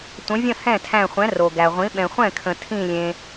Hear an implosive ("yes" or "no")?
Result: yes